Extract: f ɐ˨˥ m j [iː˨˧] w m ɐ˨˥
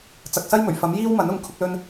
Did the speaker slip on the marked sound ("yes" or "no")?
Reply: yes